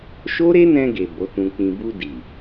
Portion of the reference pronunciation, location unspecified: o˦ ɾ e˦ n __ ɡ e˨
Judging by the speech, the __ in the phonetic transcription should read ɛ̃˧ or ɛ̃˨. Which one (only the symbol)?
ɛ̃˧